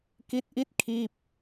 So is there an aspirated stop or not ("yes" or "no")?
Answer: yes